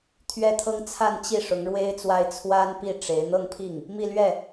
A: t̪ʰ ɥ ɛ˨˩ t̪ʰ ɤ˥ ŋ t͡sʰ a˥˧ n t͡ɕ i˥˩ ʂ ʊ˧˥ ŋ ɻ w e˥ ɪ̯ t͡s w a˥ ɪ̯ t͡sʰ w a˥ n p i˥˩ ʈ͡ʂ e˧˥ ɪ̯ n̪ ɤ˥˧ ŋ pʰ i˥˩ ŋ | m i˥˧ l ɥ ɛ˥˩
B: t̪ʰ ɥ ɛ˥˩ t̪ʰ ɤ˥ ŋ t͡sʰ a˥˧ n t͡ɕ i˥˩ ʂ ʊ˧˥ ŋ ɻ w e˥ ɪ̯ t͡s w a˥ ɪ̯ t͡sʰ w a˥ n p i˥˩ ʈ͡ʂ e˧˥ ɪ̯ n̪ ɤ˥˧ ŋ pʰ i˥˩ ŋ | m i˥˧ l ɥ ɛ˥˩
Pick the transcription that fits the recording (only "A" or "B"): B